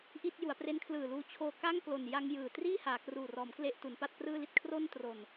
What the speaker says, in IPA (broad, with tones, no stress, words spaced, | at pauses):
ʔi˥˩t̚ ju˩˦a̯pre˦˥nkʰlɯː˨˩luː˧ t͡ɕʰoː˧ka˥˩ŋklo˨˩nja˧ŋ jɯː˨˩ triː˥˩haː˩˦kruː˨˩rɔː˩˦m kle˥˩ʔtu˩˦npa˥˩t̚ prɯː˥˩li˥˩t̚ kʰro˥˩n tro˨˩n